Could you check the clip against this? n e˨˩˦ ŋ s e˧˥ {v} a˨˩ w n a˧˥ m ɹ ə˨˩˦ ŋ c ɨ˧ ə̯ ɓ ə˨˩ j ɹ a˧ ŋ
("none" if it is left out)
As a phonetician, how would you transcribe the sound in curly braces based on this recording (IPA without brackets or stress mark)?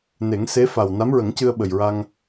f